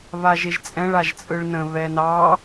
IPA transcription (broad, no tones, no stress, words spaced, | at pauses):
βaʒeʒt͡sʼɛ̃ɭ aʒt͡sʼɯɭnə̃ βɛnɑ